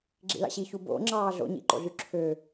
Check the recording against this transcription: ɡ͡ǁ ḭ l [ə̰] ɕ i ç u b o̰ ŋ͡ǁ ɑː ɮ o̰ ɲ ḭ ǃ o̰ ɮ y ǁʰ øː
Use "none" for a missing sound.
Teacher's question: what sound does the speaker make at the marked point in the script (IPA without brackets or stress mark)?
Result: ɑ̰